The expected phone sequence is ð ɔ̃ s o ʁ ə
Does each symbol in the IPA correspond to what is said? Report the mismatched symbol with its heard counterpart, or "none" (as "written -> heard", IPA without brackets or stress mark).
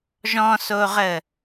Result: ð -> ʒ